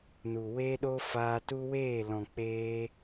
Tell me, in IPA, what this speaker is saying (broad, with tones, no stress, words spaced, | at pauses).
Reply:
nu˨ weː˦ɗo˦ faː˧tu˦ weː˦˨ lɔ̃˨k͡peː˧